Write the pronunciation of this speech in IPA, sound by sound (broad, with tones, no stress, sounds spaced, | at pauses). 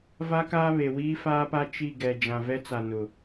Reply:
v a˦ k aː˦ β e˨ w iː˦ f aː˦ p a˦ t͡ʃ i˦˨ ɡ ɛ˨ d͡ʒ ã˨ v ɛ˦ t͡s a˨ n ʊ˨